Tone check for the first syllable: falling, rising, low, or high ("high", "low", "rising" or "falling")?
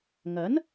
rising